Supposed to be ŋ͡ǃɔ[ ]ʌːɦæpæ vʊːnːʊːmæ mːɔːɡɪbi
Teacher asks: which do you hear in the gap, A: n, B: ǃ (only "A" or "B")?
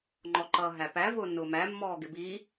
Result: B